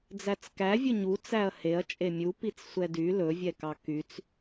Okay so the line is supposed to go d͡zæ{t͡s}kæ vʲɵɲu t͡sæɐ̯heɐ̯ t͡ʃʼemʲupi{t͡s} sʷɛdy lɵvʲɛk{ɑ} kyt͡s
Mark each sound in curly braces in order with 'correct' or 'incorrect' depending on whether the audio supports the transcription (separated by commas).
correct, correct, correct